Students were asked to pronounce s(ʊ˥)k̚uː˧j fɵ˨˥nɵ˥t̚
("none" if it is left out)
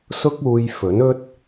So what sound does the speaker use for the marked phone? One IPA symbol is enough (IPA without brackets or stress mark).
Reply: ʊ˥